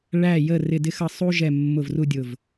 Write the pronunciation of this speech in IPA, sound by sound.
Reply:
ɭæ˦˨jə˦˨ rɪ˦˨dɪ˥xʌ˦˨ sˤu˥ʒɛ˦˨ mːʊ˦˨vru˥dʲʊ˦˨v

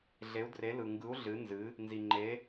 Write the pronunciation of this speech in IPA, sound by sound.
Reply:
ɮe˧˥u̯dre˧˥ lɯ˧ŋɡɯ˧˥u̯ ɮɨ˧˥nzɨ˧˥ | nzi˧ŋ͡ǃe˧˥

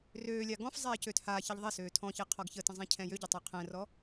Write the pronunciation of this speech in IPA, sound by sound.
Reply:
røːlʲa ɡɔ̃fzˤɛː cøːthaːçeʎ ðˤesøː tʰɔ̃çe qʰɔɡçətə̃ zˤẽcʰɛ̃jøɟə tˤøqʰɛ̃rɔ

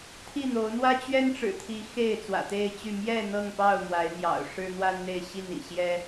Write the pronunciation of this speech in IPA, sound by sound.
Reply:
t̪ʰi˥˨n̪o˨˦ʊ̯n̪wä˦ t͡ɕɥɛ˦nʈ͡ʂɻ̩˨˩t̪ʰi˨˦ xe˥˨ɪ̯t͡swä̰˨˩t̪e˥˨ɪ̯t͡ɕy˥˨ mjɛ˥˨ n̪ɤ˥˨ŋpɑ˥˨ʊ̯ mwa˨˦ɪ̯n̪jɑ̰˨˩ʊ̯ʂɻ̩˦ n̪wa˦nn̪e˥˨ɪ̯ɕi˥˨nḭ˨˩ ɕjɛ˦

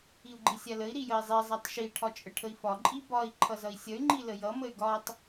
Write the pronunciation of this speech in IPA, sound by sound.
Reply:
iu̯ɡ͡ǃisʲaləi̯ ɾijəi̯zˤi zˤatˤʃi ʈʰɒt͡ʃʼəʈʰəi̯fɒ ǃʼibɒi̯ ǃʰʌzʌi̯sʲʌy̯ ŋ͡ǃiləjʌ məy̯ɡɒtˤ

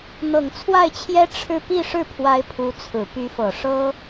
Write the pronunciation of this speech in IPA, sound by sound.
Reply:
n̪ɤ˨˩ŋt͡sʰwa˥˩ɪ̯t͡ɕʰjɛ˥ ʈ͡ʂʰɻ̩˥˧ pi˥˧ʂɻ̩˥˩pʰwa˧˥ɪ̯ pʰu˧˥t͡sʰɹ̩˨˩ py˧˥fɤ˨˩ ʂɤ˥

